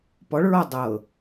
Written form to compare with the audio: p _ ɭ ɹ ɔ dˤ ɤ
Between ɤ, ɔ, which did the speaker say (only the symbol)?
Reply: ɔ